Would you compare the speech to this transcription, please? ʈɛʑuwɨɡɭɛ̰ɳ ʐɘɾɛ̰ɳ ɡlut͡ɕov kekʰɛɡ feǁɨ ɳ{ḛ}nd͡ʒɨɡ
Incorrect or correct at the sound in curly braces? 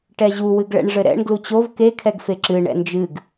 incorrect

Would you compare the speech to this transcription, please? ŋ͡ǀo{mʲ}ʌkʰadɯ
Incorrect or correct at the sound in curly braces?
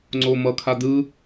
incorrect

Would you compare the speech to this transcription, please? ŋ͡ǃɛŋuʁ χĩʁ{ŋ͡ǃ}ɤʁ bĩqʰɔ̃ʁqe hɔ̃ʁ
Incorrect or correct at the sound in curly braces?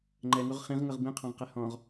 incorrect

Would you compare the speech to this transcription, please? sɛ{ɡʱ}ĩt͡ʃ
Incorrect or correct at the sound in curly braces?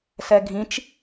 correct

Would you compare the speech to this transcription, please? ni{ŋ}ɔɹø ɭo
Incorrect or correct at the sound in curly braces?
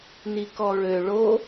incorrect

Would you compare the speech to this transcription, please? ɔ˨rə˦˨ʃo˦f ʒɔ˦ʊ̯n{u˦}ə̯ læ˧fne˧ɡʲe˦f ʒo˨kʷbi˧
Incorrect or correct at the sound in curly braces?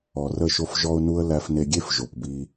correct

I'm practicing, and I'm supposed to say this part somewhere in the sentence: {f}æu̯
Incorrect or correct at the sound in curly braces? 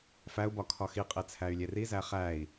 correct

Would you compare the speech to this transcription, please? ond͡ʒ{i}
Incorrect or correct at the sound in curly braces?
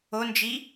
correct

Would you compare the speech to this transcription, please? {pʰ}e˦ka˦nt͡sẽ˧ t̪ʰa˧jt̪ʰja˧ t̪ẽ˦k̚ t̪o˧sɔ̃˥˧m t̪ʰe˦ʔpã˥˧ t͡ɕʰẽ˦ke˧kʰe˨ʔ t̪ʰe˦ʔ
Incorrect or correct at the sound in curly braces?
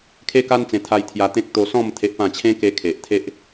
incorrect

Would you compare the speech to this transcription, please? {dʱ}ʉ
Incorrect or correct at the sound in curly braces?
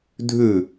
correct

